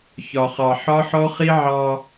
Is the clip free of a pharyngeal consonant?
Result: no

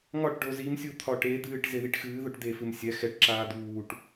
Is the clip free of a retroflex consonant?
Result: no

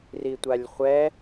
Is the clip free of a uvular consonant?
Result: no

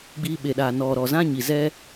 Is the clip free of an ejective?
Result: yes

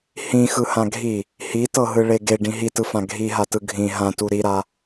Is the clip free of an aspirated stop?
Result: yes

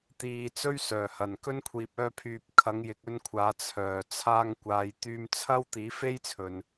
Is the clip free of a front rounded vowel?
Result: no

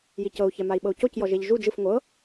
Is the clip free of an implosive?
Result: no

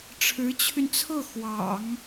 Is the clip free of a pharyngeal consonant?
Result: yes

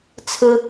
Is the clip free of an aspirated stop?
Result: no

